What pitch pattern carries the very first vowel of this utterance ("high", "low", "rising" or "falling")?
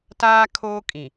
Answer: high